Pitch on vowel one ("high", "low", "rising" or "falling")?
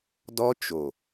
high